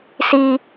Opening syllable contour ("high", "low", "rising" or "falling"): high